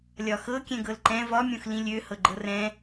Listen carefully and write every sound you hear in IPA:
lʲ ɒ x ɤ kʲ ɛ̃ ɡ ɤ l ǃ ɛ̃ v ɒ mʲ õ x l ĩ lʲ ø h ɤ ɡ͡ǃ ɤ r ɛ̃

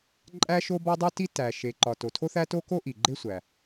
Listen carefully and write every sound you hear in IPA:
ǃʼ æ˥ ʃ o˥ b ɒ˥ dˤ u˥ t i˥ t æ˩ ʃ e˩ ǃ ɒ˩ t o˩ tʰ o˥ θ æ˥ t o˥ k o˥ ʔ i˩ ɡ͡ǃ e˥ sʷ æ˩

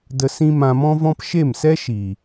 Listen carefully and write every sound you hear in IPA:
d ə˧ s ĩ˦ m ã˧ m ɔ̃˦ v ɔ̃˦ p ʃ e˦˨ m s ɛ˦ ʃ i˨

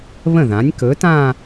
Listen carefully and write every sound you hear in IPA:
β ə̃˥˩ ð ã˩˥ nʲ k ɵ˩˥ t ã˥˧

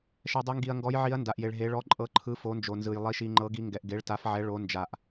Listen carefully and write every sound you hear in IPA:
ʃ ɛ˩ dˤ e˩˧ ŋ ɡ i˩ ɐ̯ ŋ ɡ ɔ˩˧ j ʕ i˩˧ ɐ̯ n d a˩ ʔ j e˩ ɭ ɦ e˩˧ ɭ ɔ˩˧ ǃʼ ɤ˩˧ ǃʰ ɯ˩˧ f o˩˧ n d͡ʒ o˩ n z ɯ˩ j lˠ i˩ ʃ i˩ ŋ͡ǃ ɤ˩˧ ɡ i˩˧ ŋ ɡ ɛ˩ ʔ ɡ e˩˧ ɭ t a˩˧ f ʕ ɛ˩˧ ɭ o˩˧ n d͡ʒ a˩ ʔ

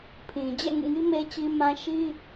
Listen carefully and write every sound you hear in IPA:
pʰ ĩ˨ d͡ʑ ɛ̰˦˨ ŋ ṵ˦˨ ŋ i˦ m e˦ t͡ɕ i˦ m ã˦ ʃ i˦

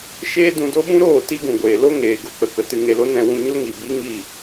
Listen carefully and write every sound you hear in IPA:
ʃ eː˦ d ũ˧ d o˦ ɓ ũ˦ ɾ oː˦˨ t i˦ ɡ ũ˨ ɡʷ eː˨ l o˦ ŋ eː˨ ɡ o˧ k͡p ə˨ k ə˨ t ɨ˧ ŋ e˧ l o˦ n ɛ̃˧ w ũ˧ ɲ o˦ ŋ i˨ b i˦ ŋ i˦˨

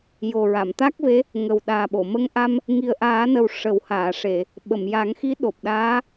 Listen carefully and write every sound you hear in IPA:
j o˨˩ ɹ a˨˩˨ m t̪ a˦˥ k̚ v e˧˥ | ŋ ə˨˩ w ɗ aː˨˩ ɓ o˨˩˨ m ə˧˥ ŋ ʔ a˧ m | ŋ i˨˩ ə̯ ʔ aː˨˩˦ n ə˨˩ w ʂ ə˨˩˦ w h aː˨˩˨ ʂ e˨˩˨ | ɓ ə˨˩˨ m j aː˨˩˦ ŋ x i˧˥ ɗ o˨˩ p̚ ɗ aː˧˥

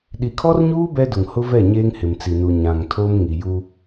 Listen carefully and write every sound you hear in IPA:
ɗ i˨ kʰ ɔ˦ r ɲ uː˦ b ɛ˦ d ʊ˨ ŋ h ʊ˦ v ɛ˦˨ ɲ eː˦ ŋ h ɪ˨ m t͡s i˨ n u˨ ɲ ã˨ ŋ tʰ o˦ m ŋ i˨ j u˦

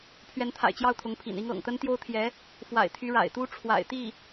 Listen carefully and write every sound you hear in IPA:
pʰ ɥ ɛ˧˥ n t̪ʰ a̰˨˩ ɪ̯ t͡ɕ j ɑ˥˩ ʊ̯ t̪ʰ ʊ˧˥ ŋ pʰ ḭ˨˩ n i˥ ŋ ɤ̰˨˩ ŋ t̪ ə˥ n t̪ j o˥ ʊ̯ t̪ʰ j ɛ˧˥ | f w a̰˨˩ ɪ̯ t̪ʰ y˧˥ ɻ a̰˨˩ ɪ̯ t̪ u˥ ʈ͡ʂʰ w a̰˨˩ ɪ̯ t̪ i˥˩

